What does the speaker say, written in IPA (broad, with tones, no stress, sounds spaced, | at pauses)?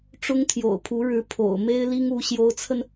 ʈ͡ʂ ʊ˥ ŋ t̪ʰ j o̰˨˩ ʊ̯ pʰ u˧˥ ɻ ɻ̩˧˥ pʰ o̰˨˩ ʊ̯ m e˥ ɪ̯ l i˥ ŋ u˧˥ ɕ j o˧˥ ʊ̯ t͡sʰ ə˧ n